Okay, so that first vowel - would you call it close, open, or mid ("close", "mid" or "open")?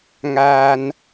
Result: open